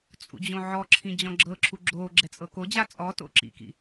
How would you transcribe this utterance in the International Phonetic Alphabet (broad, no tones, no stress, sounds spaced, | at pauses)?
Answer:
t͡sʼ ṵ d͡ʑ õ ʕ ɔ ǁʰ ĩ d͡ʑ ɔ̃ ɡ͡ǁ ɤ ǁʰ u ɡ͡ǁ o ɡ͡ǁ ɛ t͡sʼ ɤ k o d͡ʑ a t͡sʼ ɔ t o̰ ǁ ḭ k ḭ